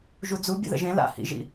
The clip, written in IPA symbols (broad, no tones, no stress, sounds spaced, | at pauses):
ʒ u d͡z u bʲ ə̰ ð ə̰ ʒ ẽ l a̰ h ḭ ʒ ḭ